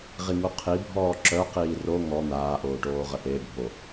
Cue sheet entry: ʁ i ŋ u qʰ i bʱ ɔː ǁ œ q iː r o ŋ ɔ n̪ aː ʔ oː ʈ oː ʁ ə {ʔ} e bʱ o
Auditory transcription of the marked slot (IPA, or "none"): ʔ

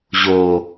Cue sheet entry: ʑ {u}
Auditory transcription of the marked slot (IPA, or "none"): o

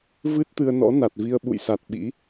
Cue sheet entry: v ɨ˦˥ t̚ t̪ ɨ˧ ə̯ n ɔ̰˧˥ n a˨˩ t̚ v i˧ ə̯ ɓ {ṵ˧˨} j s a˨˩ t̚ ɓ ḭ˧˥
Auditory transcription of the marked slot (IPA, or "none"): ṵ˧˨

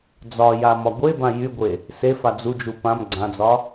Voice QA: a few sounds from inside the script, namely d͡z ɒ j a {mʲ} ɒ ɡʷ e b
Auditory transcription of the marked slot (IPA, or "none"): m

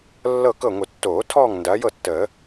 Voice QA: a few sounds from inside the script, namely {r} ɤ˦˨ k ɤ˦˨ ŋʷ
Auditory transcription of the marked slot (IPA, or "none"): lː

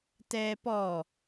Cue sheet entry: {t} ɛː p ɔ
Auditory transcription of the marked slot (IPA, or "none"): t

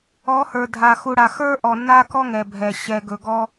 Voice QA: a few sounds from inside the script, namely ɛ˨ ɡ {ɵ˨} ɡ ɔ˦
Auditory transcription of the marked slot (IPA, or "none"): ɵ˨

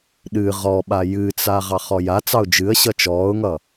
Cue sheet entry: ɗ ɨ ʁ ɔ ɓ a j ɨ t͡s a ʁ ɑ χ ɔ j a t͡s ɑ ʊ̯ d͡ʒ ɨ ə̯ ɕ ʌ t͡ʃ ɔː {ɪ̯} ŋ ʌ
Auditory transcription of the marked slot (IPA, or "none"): ʊ̯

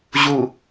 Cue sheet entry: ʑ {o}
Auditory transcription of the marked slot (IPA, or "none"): u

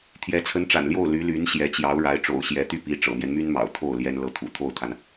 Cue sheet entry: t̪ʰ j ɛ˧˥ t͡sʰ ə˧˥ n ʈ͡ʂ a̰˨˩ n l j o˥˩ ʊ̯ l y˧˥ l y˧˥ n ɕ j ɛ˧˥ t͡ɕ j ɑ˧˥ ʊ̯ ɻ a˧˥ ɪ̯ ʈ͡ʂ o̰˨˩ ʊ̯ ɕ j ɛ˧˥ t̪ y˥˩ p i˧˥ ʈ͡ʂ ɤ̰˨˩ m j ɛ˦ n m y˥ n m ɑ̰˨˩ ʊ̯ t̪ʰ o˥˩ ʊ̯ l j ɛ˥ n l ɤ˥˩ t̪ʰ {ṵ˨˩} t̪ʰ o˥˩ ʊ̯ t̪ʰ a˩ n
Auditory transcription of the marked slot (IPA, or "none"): ṵ˨˩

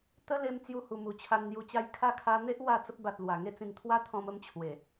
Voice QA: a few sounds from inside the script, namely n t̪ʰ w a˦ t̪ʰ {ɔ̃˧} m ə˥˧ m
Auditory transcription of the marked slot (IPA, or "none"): ɔ̃˧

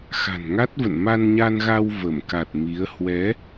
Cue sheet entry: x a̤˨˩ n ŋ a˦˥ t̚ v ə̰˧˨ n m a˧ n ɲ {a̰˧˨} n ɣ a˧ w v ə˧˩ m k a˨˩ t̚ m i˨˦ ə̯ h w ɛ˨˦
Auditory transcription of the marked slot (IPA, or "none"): a˧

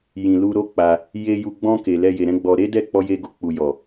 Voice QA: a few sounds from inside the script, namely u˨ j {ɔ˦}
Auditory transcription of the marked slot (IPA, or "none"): ɔ˨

